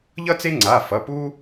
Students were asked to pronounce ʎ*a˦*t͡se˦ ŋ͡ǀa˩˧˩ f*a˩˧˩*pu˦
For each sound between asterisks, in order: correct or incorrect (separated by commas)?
incorrect, incorrect